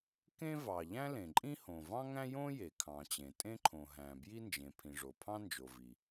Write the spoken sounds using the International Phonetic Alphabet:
kẽ˥vɑ˩ ʎæ̃˥lẽ˩ǃʼĩ˥hõ˩ vɑ̃˥ŋæ̃˥jõ˥ je˩kʰɑ̃˩t͡ɕẽ˩ tʼẽ˥ǃʰõ˩ɦæ̃˩ bji˥nd͡ʒẽ˩pʰĩ˩ʐo˩ pʰɑ̃˥nd͡ʒo˩ vi˩

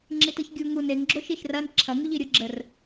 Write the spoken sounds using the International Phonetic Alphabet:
ŋ͡ǁitɯçɡʲu ŋu neŋ ɡ͡ǁoʃiʃrɐn ǁʰɐ ŋuʎiɾʲʊ ɡ͡ǁər

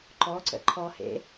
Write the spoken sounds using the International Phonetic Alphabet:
ǃɔǀə̰ ǃʰɔhḛ

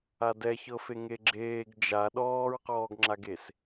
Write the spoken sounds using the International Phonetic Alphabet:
adɛçɤfe ŋeɡ͡ǁeːɡ d͡ʒa ɗɔːɹqɔːɡŋ͡ǁaɡes

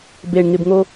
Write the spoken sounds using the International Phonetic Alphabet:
beɳŋɪbŋo

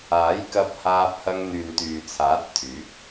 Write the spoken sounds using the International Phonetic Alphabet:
aː˨˥j kɐ˧p̚haː˧p̚hɐ˧ŋ n̪yː˨nt̪yː˨t͡sʰaː˨˥t̚t̪ʰyː˨˥k̚

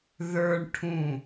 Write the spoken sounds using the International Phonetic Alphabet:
ðə˞ɳ ʈʰũ

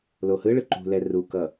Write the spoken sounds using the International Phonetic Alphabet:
lohɯɭɯ ǃṳlɛ rukʌ

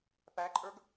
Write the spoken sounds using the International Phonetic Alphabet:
pæǃʼə˞ɡ

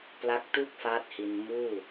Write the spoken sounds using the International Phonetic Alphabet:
pla˦˥k̚tu˥˩k̚faː˦˥t̚hi˧n muː˥˩

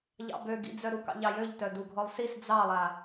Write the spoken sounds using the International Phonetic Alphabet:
ʎɑ̰bøɡḭd͡zœ ɾukɑ̰ʎɑjøʎ tœduɡʱɔlˠsis d͡zɑlˠa

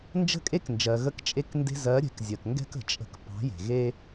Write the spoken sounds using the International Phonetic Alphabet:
nd͡ʒə̤˦˨kʼe˦knd͡ʒɜ˨ ɣə˧kt͡ʃʼe˧knde̤˧ zɜ˨˦ɾʲɛ̤˨kzʲɜ˨kŋɡɛ̤˦k ə̤˨t͡ʃʼə̤˧k pɑ̤˨˦je̤˨ɣe˦

